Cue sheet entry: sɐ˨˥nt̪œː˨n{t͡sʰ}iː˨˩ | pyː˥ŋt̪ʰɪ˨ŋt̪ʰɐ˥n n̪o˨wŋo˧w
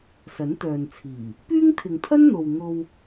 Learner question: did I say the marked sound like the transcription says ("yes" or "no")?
yes